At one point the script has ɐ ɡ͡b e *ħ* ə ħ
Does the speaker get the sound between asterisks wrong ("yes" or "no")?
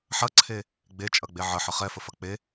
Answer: yes